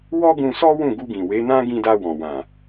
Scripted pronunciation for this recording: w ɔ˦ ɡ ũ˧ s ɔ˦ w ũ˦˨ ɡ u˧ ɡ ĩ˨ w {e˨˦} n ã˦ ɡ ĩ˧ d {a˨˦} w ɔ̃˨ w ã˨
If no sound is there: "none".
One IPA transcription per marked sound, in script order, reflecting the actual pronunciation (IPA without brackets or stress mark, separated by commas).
e˨˦, a˧